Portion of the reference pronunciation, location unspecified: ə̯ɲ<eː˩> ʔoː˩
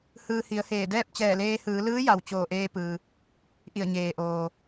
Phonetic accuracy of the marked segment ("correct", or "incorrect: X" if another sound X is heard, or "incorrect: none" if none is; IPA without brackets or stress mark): correct